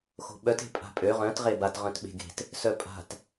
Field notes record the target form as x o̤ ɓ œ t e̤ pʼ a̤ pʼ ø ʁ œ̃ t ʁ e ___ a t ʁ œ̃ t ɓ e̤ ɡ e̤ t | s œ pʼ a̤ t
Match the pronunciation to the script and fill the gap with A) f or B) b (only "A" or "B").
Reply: B